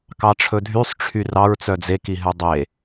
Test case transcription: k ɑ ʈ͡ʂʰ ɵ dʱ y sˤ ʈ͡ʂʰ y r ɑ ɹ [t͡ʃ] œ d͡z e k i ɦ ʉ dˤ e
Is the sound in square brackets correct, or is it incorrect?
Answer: incorrect: t͡s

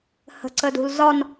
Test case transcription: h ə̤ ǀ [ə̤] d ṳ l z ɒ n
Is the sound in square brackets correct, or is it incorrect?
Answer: incorrect: ə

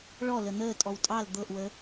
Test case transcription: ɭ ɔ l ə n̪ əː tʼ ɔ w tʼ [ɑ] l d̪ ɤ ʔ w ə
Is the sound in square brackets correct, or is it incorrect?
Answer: correct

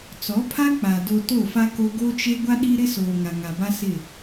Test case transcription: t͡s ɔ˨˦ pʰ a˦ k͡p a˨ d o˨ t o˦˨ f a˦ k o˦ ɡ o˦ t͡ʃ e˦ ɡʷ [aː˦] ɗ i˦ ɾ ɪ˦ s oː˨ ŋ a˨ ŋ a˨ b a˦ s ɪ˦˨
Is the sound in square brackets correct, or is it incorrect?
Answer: incorrect: a˦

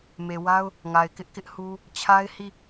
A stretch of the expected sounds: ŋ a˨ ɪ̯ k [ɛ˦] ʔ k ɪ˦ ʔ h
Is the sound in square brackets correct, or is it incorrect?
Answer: incorrect: ɪ˦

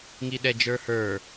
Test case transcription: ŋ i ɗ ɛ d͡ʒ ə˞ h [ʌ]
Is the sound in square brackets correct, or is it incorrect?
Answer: incorrect: ə˞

